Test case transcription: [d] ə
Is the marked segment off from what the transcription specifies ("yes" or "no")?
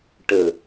yes